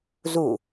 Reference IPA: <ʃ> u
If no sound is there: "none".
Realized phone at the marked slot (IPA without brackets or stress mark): z